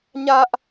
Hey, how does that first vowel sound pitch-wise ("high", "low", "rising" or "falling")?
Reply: high